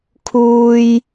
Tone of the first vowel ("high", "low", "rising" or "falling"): high